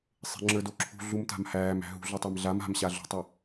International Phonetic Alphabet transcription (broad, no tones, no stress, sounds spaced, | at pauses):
sˤ e̤ ŋ͡ǁ ə˞ d o ǁʰ ṳ ɮ u m t a̤ m h æː m æ̤ ɦ ṳ ɮ u tˤ a m ɮ a m a̤ m ɕ a ɮ ṳ tˤ e